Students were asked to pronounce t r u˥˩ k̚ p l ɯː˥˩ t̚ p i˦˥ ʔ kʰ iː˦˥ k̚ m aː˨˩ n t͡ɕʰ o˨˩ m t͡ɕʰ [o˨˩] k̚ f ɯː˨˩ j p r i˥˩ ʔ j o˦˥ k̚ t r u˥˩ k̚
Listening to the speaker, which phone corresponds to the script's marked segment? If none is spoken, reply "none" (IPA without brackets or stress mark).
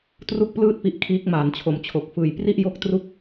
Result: o˨˩